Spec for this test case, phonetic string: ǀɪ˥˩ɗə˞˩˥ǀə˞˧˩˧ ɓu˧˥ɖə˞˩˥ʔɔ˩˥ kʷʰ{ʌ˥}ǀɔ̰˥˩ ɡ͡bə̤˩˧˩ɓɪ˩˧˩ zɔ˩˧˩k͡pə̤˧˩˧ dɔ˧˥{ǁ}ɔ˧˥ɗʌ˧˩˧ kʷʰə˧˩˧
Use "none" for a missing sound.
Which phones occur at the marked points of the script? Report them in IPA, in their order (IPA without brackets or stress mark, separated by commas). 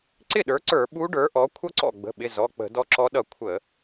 ʌ˥, ǁ